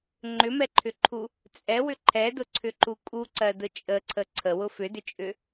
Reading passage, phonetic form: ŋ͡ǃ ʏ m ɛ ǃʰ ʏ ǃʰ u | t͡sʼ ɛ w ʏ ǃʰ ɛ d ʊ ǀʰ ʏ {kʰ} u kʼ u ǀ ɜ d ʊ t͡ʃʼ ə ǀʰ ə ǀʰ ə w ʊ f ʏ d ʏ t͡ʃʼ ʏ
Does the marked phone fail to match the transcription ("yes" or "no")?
yes